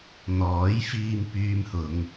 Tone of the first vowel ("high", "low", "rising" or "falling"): rising